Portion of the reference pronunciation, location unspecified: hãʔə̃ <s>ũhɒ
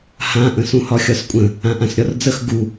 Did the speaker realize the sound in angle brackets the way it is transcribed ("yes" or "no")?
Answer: yes